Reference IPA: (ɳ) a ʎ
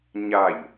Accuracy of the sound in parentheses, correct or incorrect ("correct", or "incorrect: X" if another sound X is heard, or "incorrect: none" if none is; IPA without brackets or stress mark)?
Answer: incorrect: ɲ